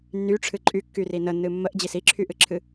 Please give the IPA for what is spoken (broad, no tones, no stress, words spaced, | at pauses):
nːyʈ͡ʂʰɨ ǃʼykːyri nənːɨ mːəʔd͡ʑis iǁʰyʔɨǁʰɨ